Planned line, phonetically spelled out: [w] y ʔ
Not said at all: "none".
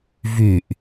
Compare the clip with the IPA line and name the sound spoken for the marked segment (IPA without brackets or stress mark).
v